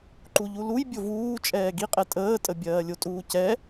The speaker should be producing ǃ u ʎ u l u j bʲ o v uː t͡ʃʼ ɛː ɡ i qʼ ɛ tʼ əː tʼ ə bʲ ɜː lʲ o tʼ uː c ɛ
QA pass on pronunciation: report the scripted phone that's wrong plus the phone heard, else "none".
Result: none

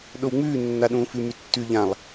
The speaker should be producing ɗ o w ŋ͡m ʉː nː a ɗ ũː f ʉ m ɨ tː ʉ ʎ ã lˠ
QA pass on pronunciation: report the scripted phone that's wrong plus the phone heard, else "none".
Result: ɨ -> ʉ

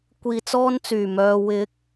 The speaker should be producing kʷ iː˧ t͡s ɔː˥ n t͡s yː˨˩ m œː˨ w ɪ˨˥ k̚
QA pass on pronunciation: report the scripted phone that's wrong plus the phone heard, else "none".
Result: none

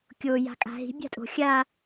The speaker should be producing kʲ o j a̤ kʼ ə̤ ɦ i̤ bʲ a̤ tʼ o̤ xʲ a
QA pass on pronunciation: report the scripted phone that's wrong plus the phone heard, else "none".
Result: ə̤ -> a̤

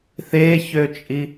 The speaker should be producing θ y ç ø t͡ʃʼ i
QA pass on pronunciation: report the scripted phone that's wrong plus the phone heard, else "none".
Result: y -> e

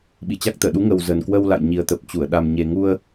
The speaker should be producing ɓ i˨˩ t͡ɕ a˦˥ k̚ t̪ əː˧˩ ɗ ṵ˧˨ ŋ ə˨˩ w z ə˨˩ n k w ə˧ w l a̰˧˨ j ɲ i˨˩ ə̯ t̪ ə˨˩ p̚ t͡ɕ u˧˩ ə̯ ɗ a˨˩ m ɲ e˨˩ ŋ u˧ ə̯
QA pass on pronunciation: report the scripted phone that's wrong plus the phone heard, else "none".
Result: ṵ˧˨ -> u˨˦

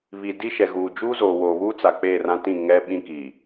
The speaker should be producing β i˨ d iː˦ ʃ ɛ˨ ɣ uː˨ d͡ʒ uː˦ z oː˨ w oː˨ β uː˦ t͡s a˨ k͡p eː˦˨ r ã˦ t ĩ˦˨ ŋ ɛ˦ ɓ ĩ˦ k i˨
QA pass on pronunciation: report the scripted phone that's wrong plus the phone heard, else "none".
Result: iː˦ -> i˦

